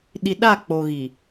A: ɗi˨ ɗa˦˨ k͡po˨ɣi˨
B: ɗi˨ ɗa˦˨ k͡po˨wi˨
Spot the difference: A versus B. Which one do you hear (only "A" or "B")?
A